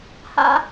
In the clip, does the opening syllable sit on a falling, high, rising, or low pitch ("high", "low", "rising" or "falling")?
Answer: high